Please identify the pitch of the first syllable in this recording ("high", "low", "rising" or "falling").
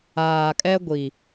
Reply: low